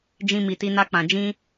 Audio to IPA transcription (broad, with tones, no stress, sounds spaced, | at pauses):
d͡ʒ ĩ˧ m i˨ t i˧ n a˧ k͡p ã˨ d͡ʒ ĩ˧